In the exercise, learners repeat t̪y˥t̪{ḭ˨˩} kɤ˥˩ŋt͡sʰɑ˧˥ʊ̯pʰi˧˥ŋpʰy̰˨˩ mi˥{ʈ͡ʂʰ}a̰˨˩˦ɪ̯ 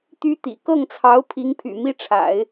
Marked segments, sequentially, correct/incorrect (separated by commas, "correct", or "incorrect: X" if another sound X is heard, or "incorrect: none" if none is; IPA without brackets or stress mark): correct, correct